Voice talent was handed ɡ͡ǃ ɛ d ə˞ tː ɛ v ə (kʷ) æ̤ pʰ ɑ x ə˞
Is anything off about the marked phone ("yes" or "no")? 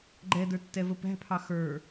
yes